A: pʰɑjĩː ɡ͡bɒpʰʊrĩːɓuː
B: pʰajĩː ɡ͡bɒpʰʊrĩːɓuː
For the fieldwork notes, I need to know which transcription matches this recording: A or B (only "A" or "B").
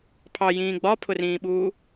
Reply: A